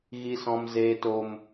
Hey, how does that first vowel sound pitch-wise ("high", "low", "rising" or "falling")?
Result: low